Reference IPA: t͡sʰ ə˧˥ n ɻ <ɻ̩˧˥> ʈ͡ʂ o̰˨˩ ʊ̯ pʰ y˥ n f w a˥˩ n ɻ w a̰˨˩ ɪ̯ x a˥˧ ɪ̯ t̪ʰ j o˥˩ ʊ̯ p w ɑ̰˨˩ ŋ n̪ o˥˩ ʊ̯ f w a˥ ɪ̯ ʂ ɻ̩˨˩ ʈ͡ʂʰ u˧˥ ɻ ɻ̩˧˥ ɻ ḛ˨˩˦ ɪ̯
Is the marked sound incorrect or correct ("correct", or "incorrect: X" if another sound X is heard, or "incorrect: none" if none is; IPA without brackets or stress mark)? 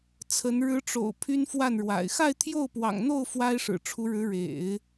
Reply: correct